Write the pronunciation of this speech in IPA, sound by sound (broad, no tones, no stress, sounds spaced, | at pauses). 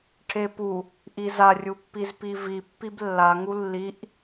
ʈʰ e p u | ʔ i z a rʲ u pː i z p i v i pː i b lː a ŋ u lː i ʔ